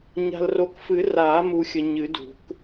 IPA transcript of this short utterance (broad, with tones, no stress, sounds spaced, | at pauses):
ɲ a̤˨ l r o˨ k f ɨ˨˩˦ r a˨˩˦ m u˨ xʲ ə˨ ɲ ɨ˨˩˦ d ṳ˨˩˦ k